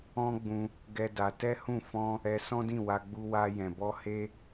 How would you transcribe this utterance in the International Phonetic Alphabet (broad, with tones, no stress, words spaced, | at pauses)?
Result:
ɔ̃˦ɡ͡bũ˧ | ɡɛ˦da˧ tɛ˦hũ˦˨ fɔ̃˧ | ɛ˧sɔ̃˦dĩ˦˨ wa˧ɡ͡bu˧ wa˧ jɛ̃˨ bɔ˧ he˦